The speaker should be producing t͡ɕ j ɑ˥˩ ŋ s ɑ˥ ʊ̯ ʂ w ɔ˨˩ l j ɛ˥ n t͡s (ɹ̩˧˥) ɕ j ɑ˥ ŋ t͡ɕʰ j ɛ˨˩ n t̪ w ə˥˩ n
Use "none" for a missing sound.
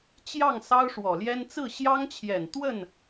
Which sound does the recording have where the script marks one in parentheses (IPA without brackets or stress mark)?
ɹ̩˥˩